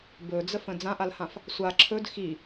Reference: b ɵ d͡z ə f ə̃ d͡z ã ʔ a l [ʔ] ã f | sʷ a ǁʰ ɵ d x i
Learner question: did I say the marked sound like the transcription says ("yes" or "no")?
no